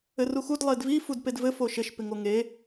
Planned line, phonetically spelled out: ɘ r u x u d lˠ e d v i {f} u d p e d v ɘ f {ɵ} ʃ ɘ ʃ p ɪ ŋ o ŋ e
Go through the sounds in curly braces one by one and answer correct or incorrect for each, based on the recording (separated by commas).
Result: correct, incorrect